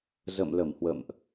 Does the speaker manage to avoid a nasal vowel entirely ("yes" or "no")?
yes